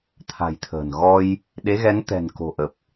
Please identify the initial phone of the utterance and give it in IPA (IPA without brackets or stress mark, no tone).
t̪ʰ